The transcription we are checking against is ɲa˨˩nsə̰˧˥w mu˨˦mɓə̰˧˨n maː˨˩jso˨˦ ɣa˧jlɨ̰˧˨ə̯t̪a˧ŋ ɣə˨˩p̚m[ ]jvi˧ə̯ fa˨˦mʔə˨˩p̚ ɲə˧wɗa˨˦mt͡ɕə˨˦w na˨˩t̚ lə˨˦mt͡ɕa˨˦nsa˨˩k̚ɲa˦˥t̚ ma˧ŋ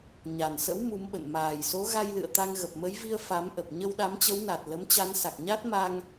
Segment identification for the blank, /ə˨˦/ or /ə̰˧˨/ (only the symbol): ə˨˦